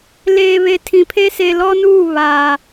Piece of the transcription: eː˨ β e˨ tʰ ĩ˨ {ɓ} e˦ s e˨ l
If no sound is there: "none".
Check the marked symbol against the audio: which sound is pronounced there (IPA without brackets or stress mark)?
pʰ